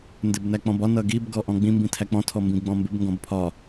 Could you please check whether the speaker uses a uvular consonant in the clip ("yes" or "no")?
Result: no